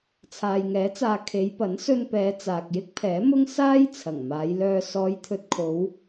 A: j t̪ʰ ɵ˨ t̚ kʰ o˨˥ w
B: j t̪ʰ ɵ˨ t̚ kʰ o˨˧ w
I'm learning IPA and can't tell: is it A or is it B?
B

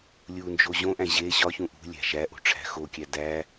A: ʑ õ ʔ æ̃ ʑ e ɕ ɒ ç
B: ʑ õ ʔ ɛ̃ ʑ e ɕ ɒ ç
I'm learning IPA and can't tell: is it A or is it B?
A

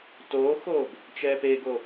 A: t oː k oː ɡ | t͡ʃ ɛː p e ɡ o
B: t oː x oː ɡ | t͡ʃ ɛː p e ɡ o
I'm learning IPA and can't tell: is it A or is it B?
B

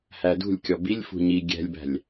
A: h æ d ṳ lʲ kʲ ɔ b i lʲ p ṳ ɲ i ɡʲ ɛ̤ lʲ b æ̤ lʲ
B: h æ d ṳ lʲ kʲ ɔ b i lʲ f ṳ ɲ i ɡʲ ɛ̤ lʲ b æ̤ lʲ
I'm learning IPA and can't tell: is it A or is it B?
B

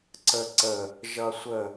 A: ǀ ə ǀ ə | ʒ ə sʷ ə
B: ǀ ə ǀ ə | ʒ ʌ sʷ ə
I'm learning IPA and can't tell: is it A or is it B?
B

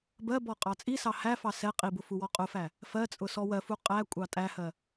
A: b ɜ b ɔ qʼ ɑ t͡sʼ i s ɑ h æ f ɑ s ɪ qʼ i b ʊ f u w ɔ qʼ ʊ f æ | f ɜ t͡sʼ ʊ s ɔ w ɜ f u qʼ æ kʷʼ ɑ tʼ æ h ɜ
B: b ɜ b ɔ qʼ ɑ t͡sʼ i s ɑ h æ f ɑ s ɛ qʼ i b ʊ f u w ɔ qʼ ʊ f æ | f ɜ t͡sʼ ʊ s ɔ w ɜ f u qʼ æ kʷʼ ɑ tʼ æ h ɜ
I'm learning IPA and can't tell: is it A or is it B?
B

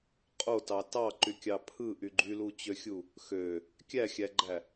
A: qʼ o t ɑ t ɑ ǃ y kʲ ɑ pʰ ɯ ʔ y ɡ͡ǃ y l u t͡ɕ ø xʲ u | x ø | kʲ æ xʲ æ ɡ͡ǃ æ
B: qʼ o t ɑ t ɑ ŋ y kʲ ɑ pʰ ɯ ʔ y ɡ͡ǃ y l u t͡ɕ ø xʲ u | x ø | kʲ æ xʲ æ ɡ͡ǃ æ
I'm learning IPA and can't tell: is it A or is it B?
A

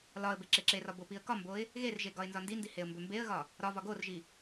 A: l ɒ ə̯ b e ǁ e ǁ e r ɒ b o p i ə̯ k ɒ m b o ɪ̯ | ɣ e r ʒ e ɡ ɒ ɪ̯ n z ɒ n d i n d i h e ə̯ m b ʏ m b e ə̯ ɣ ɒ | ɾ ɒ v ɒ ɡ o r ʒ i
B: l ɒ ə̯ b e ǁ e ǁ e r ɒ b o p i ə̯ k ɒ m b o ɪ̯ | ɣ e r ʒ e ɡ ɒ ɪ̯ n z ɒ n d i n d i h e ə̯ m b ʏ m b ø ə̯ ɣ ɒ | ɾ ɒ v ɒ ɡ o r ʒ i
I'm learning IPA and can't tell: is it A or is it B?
A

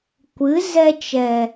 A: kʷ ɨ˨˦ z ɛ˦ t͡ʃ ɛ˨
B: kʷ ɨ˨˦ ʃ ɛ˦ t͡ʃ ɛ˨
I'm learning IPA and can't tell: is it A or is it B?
A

